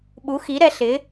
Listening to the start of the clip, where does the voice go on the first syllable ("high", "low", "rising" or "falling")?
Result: rising